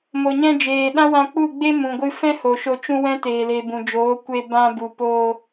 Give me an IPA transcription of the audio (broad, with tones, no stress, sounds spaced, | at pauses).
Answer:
m o˨ ɲ ɛ̃˧ d͡ʒ eː˨ ɗ ã˦ w ã˧ k͡p u˦˨ ɡ͡b e˦ m ũ˨ ɡʷ ɨ˧ f ɛ̃˦ h o˨ ʃ o˧ t͡ʃ ũ˦ w ɛ̃˦ t eː˨ l e˨ b ũ˨ d͡ʒ oː˨˦ kʷ e˧ b ã˧ b u˨ p o˧